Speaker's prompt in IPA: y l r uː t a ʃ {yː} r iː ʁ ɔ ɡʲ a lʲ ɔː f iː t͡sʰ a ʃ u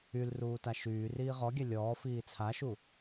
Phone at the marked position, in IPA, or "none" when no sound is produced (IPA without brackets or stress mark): yː